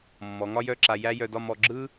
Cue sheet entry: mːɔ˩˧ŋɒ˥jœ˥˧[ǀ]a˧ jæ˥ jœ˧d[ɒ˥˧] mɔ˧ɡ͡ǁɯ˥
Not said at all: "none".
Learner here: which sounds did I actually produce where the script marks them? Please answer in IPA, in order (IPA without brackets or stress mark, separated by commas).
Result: ǁ, ɒ˥˧